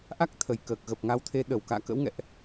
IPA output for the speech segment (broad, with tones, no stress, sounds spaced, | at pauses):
ʔ a˦˥ k̚ t̪ʰ ə˧˩ j k əː˨˩ k̚ ɣ ə˨˩ p̚ ŋ a˨˦ w t̪ʰ e˨˦ ɗ ə˧˩ w k a̰ː˧˨ k ə̰˧˥ w ŋ ɛ̰˧˨ ʔ